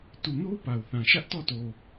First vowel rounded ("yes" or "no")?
yes